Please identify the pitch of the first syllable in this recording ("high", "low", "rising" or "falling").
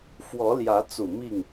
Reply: rising